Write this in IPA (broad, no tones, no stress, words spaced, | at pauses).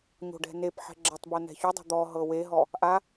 ɲo̤ɖɛ̤nepħɛ̤ ɡ͡ǁɛtˤbo nɛ̤çudˤo̤ d̪ɔ ɦɤweɦɔ | ʔa